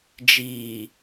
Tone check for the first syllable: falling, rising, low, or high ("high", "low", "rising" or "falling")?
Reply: low